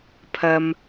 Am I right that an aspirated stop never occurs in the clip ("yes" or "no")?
no